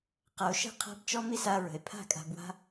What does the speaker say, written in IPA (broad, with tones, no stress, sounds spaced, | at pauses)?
q a˨ o̯ ʃ ə̤˦˨ qʰ a̤˦ b t͡ʃ ɔ˦ m i˦ s a˧ ɹ ə̤˨ e̯ pʰ a̤˦˨ kʼ a̤˧ b w a̤˦